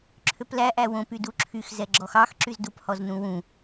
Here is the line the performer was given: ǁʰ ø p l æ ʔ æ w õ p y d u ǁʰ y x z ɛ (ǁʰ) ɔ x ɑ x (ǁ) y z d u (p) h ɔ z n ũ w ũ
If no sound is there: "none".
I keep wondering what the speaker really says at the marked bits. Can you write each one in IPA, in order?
ɡ͡ǁ, ǁ, p

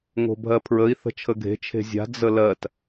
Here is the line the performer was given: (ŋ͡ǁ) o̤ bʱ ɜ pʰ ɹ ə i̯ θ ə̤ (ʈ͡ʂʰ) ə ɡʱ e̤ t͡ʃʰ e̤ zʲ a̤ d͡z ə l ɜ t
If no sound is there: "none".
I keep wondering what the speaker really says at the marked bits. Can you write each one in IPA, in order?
ŋ, t͡ʃʰ

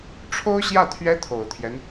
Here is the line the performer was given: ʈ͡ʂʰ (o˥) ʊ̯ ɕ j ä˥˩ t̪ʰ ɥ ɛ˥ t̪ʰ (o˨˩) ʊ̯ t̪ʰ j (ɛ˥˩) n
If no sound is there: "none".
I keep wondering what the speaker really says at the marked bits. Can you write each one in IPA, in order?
o˥, o˨˩, ɛ˦

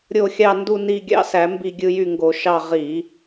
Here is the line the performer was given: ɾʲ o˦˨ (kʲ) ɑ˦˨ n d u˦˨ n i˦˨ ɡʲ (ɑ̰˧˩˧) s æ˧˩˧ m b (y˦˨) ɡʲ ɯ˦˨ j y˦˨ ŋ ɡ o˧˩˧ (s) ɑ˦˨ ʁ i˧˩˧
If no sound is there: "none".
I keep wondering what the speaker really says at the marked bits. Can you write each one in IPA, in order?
xʲ, ɑ̰˦˨, i˦˨, ʃ

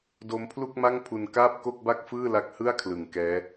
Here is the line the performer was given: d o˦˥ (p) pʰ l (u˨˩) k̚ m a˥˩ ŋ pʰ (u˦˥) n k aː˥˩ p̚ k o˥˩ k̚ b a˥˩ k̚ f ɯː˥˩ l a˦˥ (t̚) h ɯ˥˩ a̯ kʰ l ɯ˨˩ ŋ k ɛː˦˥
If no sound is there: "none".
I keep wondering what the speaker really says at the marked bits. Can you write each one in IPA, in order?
m, u˥˩, u˧, k̚

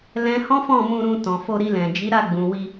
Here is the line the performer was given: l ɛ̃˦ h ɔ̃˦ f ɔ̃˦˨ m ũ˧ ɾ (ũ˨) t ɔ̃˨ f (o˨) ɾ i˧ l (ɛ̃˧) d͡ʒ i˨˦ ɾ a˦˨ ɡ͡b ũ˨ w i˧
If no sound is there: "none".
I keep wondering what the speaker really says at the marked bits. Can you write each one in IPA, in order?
ũ˧, o˧, ɛ̃˨

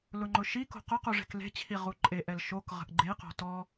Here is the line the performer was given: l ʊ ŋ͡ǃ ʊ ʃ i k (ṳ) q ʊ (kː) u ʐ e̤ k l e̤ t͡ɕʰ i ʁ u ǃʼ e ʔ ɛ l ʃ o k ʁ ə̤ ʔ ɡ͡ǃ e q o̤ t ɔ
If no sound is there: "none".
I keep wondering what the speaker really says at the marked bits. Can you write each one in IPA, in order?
o̤, q

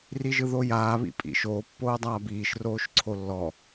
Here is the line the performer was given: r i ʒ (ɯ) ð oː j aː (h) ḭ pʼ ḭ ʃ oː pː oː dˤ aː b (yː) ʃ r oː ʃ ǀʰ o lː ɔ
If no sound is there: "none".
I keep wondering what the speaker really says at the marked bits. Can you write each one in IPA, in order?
ɯ, β, iː

